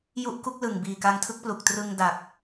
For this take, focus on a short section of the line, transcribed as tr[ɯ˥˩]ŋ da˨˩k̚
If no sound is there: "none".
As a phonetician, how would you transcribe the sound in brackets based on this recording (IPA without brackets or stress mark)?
ɯ˧